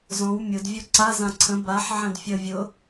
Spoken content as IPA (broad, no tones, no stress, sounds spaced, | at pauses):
z ɔ̃ w mʲ ʊ d vʲ u ǀ a z ã ǀʰ ə̃ b a ħ ʕ æ̃ d fʲ ə vʲ ʊ